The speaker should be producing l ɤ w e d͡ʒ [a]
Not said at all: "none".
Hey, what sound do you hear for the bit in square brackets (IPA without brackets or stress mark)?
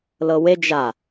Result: a